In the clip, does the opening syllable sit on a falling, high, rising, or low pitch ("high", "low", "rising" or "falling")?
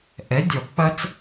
rising